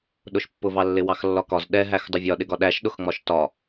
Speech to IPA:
ɗ ʊ ʃ pː ʊ v ɑ lː ɪ w ɑ x lː ɒ k ɒ z ɗ ɛ ɦ æ x dˤ ʊ vʲ ɒ ɗ ɪ ɡ ɒ ɗ æ ʃ ɗ ʊ x ŋ͡m ɒ ʃ t ɒ

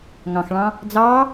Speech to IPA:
ŋ ɑ̃ x ɭ ɑ̃ | d͡z ɑ

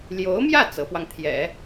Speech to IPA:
l j o˧˥ ʊ̯ m j ä˥˩ t͡s ɤ˧˥ p w ɑ˧ ŋ t̪ʰ j ɛ̰˨˩˦

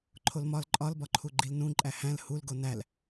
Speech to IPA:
ǃʰ o l m ɒ l ǃʼ ɒ l b ɒ ǃʰ u ɡ͡ǃ i l n ũ ǃʼ æ h æ̃ l h u l ɡ o n æ l

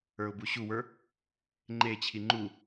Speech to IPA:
ə˞ ʊ̯ b u ɕ u w ə˞ | ŋ͡ǃ e t͡ɕʰ i ŋ͡ǃ u

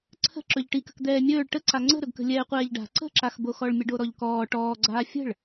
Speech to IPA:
ǀʰ ə̤ ǁ ɵ ʎ ʈ i k ə̤ k d̪ ɛː mʲ ɵː ɭ ʈ ə ǀ a ŋ͡ǀ ə̤ ɾ ɵ ɡ k ə̤ lʲ ɛː qʷ ɛː ʎ ɖ a̤ ǀ ə̤ ǁ a x b o x ɔ ɭ mʲ ə ɖ o ɾ ɔ ʎ k ɔː ʈ ɔː ɡ͡ǀ aː fʲ ə̤ ɭ

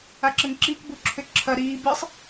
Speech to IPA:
a ǁ ə ŋ ǁ iː k b u ǁʰ ʏ ǁʰ ɐ ɾ iː b ɨ sˤ

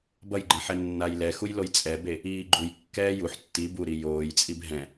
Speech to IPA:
b ʌ j ɡ͡ǃ ẽ ħ ɛ nː a j l ɛ x u j l o j t͡sʼ ɛ b e | iː ɡ͡ǃ u j kː ɛː j u ħ tː i b u ɾ i j oː j t͡sʼ i b ɦ ɛ̃

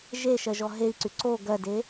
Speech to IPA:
ʒ e ʃ ɜ ʒ ɔ ɦ e i̯ ǀ y ǀ o ɡ ɜ d e

